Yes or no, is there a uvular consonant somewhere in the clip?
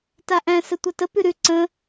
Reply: no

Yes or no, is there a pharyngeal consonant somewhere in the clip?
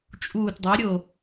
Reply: no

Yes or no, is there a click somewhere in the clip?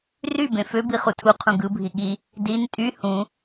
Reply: no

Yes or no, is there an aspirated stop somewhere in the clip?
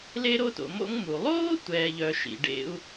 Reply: no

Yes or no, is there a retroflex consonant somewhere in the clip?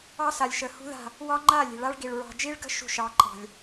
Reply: yes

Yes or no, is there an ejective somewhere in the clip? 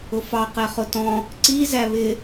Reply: no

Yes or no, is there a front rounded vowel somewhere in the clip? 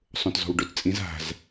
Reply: no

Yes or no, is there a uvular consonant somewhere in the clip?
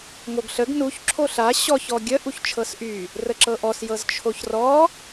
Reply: no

